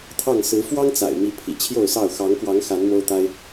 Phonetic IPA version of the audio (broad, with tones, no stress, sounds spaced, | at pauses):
t̪ʰ ɑ˥˨ ŋ s ɹ̩˨˦ f w ɑ˦ ŋ t͡s a̰˨˩ ɪ̯ m i˨˦ pʰ ḭ˨˩ t͡ɕʰ j o˥˨ ʊ̯ s ɑ˥˨ ʊ̯ x ɑ˨˦ ŋ k w ɑ˨˦ ŋ x a˨˦ n m o˦ ʊ̯ t̪ a˦ ɪ̯